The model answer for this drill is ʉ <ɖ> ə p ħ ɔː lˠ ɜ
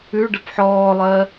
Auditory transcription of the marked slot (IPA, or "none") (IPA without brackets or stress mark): ɖ